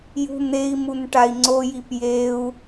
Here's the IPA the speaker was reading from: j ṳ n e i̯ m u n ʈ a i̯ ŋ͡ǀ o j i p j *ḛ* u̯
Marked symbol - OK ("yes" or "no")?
no